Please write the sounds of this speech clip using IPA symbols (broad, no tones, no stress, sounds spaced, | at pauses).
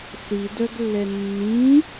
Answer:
s i d œ ɡ lː ɛ nː ĩ